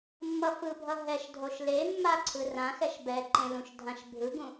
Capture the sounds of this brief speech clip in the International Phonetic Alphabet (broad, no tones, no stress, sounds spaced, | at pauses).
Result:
mː ʌ f ɯ bʱ ʌ ɦ ɛ ʃ dʱ o ʃ l e mː a ǀʰ ɯ r ã x ɛ ʃ b ɛ ǃ ẽ l ũ ʃ dʱ ã ʃ bʱ ɯ ɡ ũ